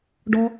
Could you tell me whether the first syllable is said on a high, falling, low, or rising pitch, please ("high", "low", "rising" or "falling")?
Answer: high